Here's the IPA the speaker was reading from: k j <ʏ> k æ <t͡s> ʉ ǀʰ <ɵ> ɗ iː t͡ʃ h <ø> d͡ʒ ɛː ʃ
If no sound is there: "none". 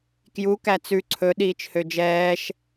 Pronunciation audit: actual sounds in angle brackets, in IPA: u, t͡s, ɵ, ø

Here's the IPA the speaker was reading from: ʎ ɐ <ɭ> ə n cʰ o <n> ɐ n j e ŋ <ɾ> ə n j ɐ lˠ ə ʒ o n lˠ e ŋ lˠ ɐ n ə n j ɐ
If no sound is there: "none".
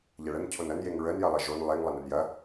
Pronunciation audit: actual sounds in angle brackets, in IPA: ɭ, n, ɹ

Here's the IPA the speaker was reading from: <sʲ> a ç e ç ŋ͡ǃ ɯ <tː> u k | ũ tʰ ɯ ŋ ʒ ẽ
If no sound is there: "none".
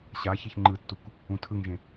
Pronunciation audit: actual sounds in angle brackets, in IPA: ɕ, tː

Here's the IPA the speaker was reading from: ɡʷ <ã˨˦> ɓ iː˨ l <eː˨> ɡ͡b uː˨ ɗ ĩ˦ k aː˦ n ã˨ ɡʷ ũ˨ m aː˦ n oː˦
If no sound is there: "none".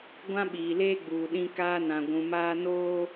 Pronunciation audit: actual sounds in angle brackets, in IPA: ã˦, eː˦

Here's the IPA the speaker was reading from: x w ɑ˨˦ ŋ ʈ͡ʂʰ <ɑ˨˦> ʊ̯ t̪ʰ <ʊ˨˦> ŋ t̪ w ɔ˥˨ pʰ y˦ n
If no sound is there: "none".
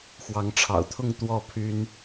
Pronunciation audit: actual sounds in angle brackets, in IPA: ɑ̰˨˩, ʊ˥˨

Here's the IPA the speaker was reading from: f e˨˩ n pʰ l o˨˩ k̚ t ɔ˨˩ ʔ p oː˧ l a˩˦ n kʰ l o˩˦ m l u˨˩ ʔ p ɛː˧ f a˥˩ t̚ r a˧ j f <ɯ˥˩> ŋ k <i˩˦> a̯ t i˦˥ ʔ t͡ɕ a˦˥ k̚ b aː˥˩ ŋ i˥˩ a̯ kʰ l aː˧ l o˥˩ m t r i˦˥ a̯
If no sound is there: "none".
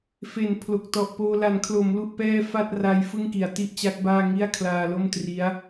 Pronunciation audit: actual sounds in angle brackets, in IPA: ɯ˥˩, i˩˦

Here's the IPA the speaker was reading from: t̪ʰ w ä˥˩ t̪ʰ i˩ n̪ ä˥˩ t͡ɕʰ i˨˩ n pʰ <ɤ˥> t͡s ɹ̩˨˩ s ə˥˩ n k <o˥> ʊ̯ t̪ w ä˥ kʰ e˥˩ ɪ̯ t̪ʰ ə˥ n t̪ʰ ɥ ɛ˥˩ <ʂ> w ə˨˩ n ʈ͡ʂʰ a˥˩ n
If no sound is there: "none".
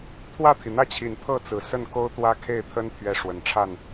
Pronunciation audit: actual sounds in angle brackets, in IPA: ɤ˥˩, o˥, ʂ

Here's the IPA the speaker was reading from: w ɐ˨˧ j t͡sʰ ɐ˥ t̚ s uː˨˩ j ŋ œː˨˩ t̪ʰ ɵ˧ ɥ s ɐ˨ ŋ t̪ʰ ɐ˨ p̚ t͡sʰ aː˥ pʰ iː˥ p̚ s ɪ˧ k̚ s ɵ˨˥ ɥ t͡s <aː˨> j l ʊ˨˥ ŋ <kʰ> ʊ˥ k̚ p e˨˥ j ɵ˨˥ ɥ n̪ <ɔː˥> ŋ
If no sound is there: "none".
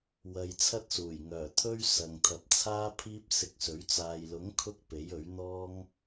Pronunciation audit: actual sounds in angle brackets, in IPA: aː˨, kʰ, ɔː˥

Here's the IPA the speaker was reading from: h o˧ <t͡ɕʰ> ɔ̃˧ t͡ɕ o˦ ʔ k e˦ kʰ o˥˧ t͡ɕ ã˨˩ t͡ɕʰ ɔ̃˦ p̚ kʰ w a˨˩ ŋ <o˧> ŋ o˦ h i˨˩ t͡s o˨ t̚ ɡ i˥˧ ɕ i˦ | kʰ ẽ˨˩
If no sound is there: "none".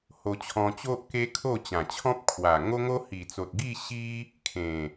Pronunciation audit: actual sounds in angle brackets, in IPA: t͡ɕʰ, o˦

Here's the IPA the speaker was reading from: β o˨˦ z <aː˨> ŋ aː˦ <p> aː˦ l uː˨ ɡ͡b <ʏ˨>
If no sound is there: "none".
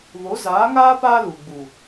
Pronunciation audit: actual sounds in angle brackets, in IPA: aː˨˦, p, u˨

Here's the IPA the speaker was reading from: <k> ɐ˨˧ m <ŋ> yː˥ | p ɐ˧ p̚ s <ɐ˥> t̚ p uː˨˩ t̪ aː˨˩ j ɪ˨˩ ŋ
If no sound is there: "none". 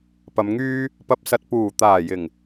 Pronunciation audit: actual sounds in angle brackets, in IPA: p, ŋ, ɐ˧

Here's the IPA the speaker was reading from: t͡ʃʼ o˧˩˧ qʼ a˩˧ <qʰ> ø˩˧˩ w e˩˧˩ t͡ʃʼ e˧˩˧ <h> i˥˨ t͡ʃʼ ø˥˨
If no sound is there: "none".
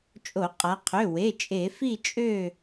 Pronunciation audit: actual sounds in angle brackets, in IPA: qʰ, f

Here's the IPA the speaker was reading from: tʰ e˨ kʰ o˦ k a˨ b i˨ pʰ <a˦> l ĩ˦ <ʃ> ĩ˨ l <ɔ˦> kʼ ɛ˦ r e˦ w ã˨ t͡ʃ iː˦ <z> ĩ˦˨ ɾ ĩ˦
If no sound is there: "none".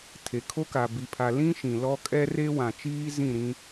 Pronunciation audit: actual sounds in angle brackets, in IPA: a˨, ʃ, ɔ˦, z

